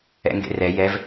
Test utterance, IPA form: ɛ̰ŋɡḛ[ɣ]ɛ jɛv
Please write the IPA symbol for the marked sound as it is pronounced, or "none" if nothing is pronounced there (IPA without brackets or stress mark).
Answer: r